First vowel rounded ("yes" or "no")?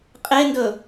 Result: no